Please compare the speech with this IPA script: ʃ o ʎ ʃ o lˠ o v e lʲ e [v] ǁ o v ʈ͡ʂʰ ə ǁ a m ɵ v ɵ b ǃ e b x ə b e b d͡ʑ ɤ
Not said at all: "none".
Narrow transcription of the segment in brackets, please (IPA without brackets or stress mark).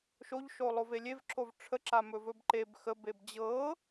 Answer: v